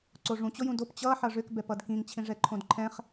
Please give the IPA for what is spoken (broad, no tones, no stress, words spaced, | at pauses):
ǀoʐũ t͡ɕojũdop t͡ɕʌ ħʌʐʏk bɛpʌdkĩŋ t͡ɕʰĩʐɛǃʰõdǃʰɛ̃χ